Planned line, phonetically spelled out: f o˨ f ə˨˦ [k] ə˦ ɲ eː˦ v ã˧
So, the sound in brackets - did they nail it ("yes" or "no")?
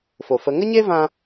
no